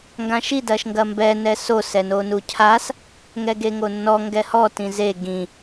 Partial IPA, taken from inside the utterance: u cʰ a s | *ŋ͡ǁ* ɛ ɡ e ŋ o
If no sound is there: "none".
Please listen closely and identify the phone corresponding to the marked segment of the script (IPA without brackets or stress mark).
ŋ